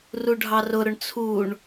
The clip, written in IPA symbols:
r u ɖʱ ɑ r ʊ ɾ ʊ ɳ t͡sʰ u ɳ

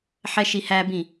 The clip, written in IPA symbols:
ħ ɛ ʃ i h æ b ĩ

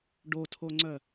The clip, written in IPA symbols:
ɖ o tʰ o ŋ͡ǀ œ

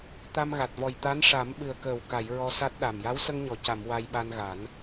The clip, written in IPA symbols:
t̪ a˧ m ɣ a˨˩ t̚ v ɔ˨˩ j t̪ a˧˥ n ʂ a˨˩˦ m ɓ ɨ˨˩ ə̯ k əː˨˩ w k a˨˩˨ j ɹ ɔ˧ s a˦˥ t̚ ɗ a˨˩ m j a˧˥ w s ə˧ ŋ ɲ ɔ˨˩˨ c a˨˩˨ m w a˧ j ɓ a˧ n ɣ a˨˩˦ n

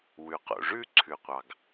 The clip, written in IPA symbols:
w ʉ˩ q o̰˩ ʐ ʉ˥˧ ǀʰ ʉ˩ qʷ ɑ˩ ɡ

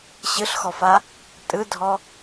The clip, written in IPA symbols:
ɕ ɯ ɬ x ɔ f a | tʼ ɯ dʱ ɔ

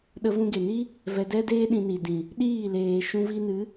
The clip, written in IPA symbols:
ɗ ə˧ v ũ˧ ɡ e˨ n i˦ | v ɛ˧ d ɛ˦ d eː˦ ɗ ĩ˧ n i˨ d ĩ˨ | ɗ iː˦˨ l eː˨ ʃ ũ˧ v i˧ n ɨ˨˦

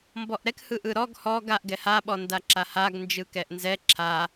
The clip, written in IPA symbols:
m b ɔ ʔ ɾ ɛ k h ɯ ʔ ɯ ɾ ɔ ɡ h ɔ ɡ a ʔ ɡ ɛ h a ɓ ɔ n d a ǁ a h a ɡ n d͡ʒ ɯ k ɛ ʔ n z ɛ ǁʰ a

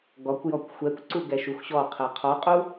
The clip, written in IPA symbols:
ɡ ɔ kʷ j ɔ kʷ xʷ ɛ kʷ ǀ u ɡ ɛ ʃ u x ɕ ɔ qʰ ɛ qʰ ɔ qʼ u

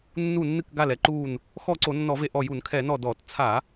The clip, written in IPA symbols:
nː u˧˩ nː ɨ˧˩ k ɡ a˧˩ l ɛ˧˩ ǃ uː˧˩ n | x ɔ˧˩ ǀ o˧˩˧ nː ɔ˧˩˧ v e˧˩ ʔ ɔ˧˩ j u˧˩˧ n kʰ ɛ˧˩˧ n ɔ˧˩ d ɔ˧˩˧ t t͡sʰ a˧˩˧

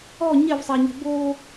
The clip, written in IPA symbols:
ɔ ɲ ɛ v sˤ a ɲ ɛ̤ b o

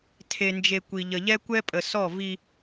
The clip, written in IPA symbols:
tʰ e˨ n d͡ʒ e˨ kʷ i˨ ʎ ə˨ ʎ ɛ˦ kʷ ɛ˦ pʼ ə˨ s ɔ˦˨ v i˦

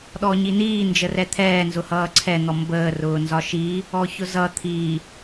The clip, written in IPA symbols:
ɗ ɔ ɲ i n iː n d͡ʒ ə r ɛ t̪ʰ ɛː n z ʊ h ʌː ǀʰ ɛ n̪ ɔ m b əː r ʊː n z ɒ ʃ i | ɔ ç ʊ z ʌ t̪ʰ i

